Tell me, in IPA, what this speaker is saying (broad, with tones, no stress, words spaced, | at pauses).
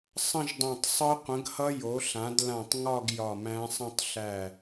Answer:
sˤə̃˥˧ʒdˤõ˧˩tˤ sˤɯ˦˥ qʷə̃˨˥ɡhʌ˦˥ jo˨˥ɬã˨˥d lã˧˩tˤŋɒ˥˧ɡ jɒ˧˩mæ̃˦˥sˤə̃˥˧tˤ ɬæ˧˩